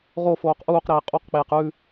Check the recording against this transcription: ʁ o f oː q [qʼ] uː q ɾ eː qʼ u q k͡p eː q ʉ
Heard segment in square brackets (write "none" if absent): ʔ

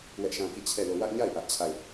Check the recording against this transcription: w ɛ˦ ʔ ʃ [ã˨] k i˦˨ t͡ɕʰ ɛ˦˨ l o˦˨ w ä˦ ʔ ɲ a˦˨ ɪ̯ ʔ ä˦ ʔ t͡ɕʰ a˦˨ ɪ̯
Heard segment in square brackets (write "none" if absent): ã˦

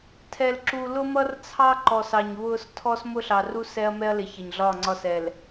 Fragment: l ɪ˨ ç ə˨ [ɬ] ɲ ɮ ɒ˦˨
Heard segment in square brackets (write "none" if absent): none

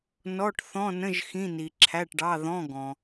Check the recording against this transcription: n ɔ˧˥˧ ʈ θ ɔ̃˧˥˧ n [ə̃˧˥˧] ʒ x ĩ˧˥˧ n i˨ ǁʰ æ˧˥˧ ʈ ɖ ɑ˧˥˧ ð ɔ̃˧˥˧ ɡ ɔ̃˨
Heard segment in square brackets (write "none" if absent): ə̃˧˥˧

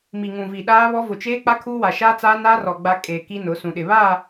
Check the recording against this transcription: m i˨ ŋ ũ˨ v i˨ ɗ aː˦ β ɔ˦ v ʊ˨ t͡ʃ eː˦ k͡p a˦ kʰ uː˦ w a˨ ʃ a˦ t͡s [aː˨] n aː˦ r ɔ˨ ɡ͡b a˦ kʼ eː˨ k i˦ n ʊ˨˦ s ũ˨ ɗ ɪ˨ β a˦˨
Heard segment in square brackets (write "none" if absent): aː˦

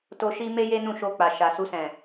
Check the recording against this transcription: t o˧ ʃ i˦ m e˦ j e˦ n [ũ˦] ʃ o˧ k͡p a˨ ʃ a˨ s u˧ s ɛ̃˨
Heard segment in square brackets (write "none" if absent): ũ˦˨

